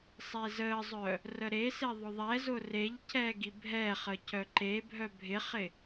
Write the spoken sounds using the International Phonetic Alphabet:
sˤezəzˤœ | rəɾese ðˤʊðˤɛzʊ reʎcɛ ɡibʱɛχə cœǃebʱœ bʱɪχɪ

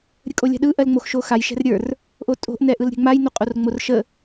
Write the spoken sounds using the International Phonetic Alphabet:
ɾʲəkʼolʲa̤ɗɯ ʔɜlŋ͡moxʃoxaj ʃɛ̤rɾʲə˞r | ʔotʼo̤ʔ nɛʔɯlɾʲɛ̤ŋ͡maj noqʼorŋ͡morʃə

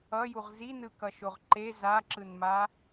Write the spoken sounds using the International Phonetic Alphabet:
ʌjuʁ zinɯkʌʃoʁ ǃe zaǁɯnma

